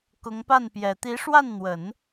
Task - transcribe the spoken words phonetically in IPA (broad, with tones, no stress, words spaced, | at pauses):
kʊ˧˥ŋpa˥˩npjɛ˨˩ t̪i˧˥ʂwa˥˩nn̪wə˨˩˦n